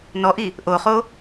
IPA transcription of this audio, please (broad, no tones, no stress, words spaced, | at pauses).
nɔʔi | ʔoχo